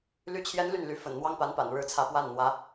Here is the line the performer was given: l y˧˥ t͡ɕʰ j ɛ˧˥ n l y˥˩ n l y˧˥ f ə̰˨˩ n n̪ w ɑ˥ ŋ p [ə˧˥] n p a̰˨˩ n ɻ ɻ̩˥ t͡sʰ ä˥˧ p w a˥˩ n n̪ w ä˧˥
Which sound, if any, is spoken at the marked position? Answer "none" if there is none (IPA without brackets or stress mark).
a˧˥